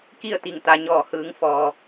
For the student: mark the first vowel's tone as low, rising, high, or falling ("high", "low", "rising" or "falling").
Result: falling